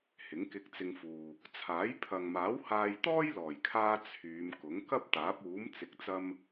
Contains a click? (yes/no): no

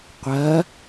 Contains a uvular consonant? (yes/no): yes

